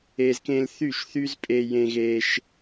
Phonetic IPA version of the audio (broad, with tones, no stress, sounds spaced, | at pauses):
e˧ z k ẽ˧ l θ y˥˩ ʃ θ y˥ z pʼ e˧ j ẽ˧ ɣ eː˧ ʃ